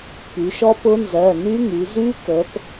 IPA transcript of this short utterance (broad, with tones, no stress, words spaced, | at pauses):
py˩˧ʃɔ˦˥ pʊ˦˥nzɜ˩˧˩ ny˦˥ŋy˩˧ zy˦˥kə˩˧p